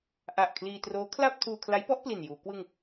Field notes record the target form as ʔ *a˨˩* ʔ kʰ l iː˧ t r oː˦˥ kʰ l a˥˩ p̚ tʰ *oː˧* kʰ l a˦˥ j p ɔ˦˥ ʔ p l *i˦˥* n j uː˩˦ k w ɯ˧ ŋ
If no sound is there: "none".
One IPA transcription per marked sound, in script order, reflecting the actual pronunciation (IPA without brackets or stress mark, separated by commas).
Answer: a˨˩, uː˧, i˨˩